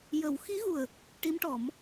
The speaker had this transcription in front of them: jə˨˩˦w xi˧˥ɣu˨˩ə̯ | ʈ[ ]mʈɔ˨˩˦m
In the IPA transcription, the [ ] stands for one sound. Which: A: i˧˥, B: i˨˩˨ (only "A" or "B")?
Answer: A